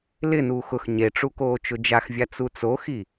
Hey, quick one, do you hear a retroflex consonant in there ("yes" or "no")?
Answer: yes